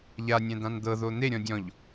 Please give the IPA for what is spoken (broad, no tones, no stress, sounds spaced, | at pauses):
ʎ a nʲ ɛ̃ d̪ ã n d̪ ɤ ð o n̪ e ɾʲ ɔ̃ dʲ ɔ̃ ʎ